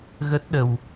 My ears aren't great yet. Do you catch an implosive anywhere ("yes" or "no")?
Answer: yes